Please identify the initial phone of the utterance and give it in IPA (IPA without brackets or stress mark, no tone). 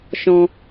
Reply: ʃ